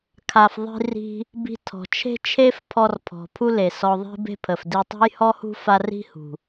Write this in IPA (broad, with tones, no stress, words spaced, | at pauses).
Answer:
kʰa˩fðˤi̤˧ri̤˧ | bi̤˧tʰɔ̤˩ t͡ʃʰe̤˥t͡ʃʰe˥fpʰɔ˧r pʰɔ̤˩pʰu˥le˩ sɔ˧ðˤi̤˥be̤˥ pʰə˩fdi˧ tˤe̤˥jhɔ˥hṳ˥ fa˥ ri̤˥hṳ˩